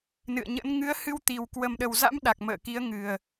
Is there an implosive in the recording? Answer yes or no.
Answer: yes